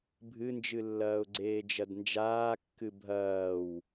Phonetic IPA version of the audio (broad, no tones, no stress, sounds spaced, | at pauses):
bʱ ɨ n d͡ʒ ɨ lː ɐː ʊ̯ ɡ͡ǀ eː d͡ʒ ɐ d n d͡ʒ aː kː ɨ bʱ ɐː w